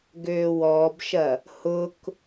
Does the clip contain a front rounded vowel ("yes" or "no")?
yes